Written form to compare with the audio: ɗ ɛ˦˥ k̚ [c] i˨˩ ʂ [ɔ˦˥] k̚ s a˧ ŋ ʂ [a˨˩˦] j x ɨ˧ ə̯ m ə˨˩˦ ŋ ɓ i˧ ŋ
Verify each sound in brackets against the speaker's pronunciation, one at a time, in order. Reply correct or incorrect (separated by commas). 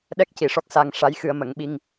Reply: correct, correct, incorrect